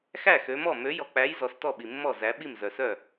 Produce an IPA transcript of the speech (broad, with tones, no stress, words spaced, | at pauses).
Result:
xæ˥˩xø˨˦mɔ˥˩ mø˨˦jɔ˨k͡pæ˨˦j zɔ˨˦stɔ˥˩ɓi˨mːɔ˥˩ zæ˨˦ɓi˥˩m zœ˨sœ˥˩